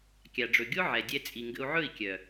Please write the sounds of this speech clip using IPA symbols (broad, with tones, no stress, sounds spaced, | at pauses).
kʲ a˨ ɖ͡ʐ ɵ˨ ɡʲ o˦ ʕ ɛ˨ dʲ ɛ˧ t͡sʼ i˨ ŋ ɡ ə̰˧ u̯ ʕ ɵ˦˨ i̯ kʲ œ˨